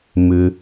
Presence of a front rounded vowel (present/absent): present